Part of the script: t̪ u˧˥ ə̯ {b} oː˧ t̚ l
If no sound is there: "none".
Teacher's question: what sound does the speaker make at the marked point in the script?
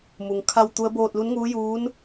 b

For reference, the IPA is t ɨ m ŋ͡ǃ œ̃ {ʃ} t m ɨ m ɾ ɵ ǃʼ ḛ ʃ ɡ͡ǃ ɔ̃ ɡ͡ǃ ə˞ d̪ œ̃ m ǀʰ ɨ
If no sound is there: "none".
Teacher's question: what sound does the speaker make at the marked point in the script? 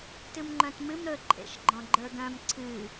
none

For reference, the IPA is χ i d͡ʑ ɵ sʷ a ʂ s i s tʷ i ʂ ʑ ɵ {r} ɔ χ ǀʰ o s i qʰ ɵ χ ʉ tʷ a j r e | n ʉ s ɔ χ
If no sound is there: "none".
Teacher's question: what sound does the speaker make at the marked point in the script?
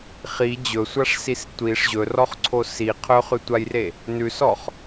r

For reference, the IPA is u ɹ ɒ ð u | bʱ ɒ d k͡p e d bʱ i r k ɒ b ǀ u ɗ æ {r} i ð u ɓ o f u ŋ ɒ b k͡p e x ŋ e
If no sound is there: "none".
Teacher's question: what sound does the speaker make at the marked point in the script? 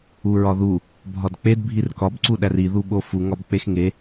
r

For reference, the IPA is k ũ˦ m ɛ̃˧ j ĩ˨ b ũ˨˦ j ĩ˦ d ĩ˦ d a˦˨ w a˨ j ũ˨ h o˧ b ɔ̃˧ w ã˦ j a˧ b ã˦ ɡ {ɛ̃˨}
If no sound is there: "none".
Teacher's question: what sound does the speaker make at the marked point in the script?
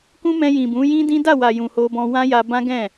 ɛ̃˦˨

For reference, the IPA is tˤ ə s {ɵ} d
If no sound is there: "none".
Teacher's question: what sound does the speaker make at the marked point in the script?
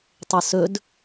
ɵ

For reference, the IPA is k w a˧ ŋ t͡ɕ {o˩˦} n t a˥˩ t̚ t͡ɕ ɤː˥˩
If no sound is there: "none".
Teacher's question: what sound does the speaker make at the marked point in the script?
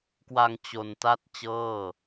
o˧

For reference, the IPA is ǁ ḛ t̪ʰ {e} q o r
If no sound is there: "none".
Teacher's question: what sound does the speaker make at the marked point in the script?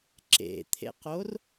ḛ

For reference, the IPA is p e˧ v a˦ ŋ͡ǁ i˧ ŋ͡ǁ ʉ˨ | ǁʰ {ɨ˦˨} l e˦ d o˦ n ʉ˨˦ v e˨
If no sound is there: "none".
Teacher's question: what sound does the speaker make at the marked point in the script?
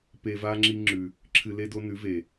ɨ˧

